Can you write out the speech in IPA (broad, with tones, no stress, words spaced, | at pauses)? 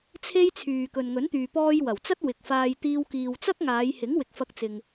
t͡sʰe˥jt͡sʰyː˨ kɵ˨nŋɵ˨˥nt̪yː˨ pɔː˧jwɐ˨˩wt͡sɐ˥t̚ wɪ˨k̚faː˧jt̪iː˧w kiː˨wt͡sɐ˥k̚ŋaː˨˧j hɪ˨˥ŋwɪ˨k̚fɐ˧k̚t͡sɪ˨ŋ